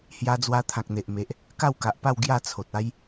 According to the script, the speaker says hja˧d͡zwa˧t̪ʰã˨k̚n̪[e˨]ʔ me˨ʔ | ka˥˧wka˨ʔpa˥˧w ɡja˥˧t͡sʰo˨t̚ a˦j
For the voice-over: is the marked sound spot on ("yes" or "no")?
yes